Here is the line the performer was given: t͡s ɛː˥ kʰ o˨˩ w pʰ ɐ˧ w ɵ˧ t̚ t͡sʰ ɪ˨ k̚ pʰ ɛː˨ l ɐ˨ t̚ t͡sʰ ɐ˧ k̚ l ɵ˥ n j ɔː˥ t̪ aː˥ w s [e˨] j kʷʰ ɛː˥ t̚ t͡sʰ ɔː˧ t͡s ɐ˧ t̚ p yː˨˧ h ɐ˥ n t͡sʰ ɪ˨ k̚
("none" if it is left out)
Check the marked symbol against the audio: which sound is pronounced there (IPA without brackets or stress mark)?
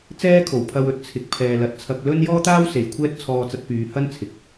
e˨˧